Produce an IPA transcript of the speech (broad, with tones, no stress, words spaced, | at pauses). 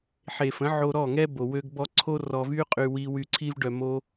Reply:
ħe˨fə̃˨˦ ʕo˧ɾɔ˦˨ŋɛ˦ bo˨ wø˧ɡbɔ˧ ǀʰo˦rɔ˧vy˦ qʼy˧wi˧ wy˧ǀʰi˦vɖœ˧ mo˦